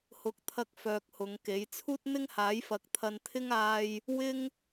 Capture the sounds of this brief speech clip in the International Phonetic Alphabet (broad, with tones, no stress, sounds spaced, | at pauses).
h ʊ˨˥ k̚ t̪ʰ ɐ˧ k̚ f œː˧ k̚ h ʊ˨˧ ŋ k e˨˥ j t͡sʰ uː˥ t̚ n̪ ɪ˥ ŋ h aː˨˥ j f ɐ˨˥ k̚ t̪ʰ ɐ˧ n t̪ʰ ɪ˥ ŋ aː˧ j | w ɪ˥ ŋ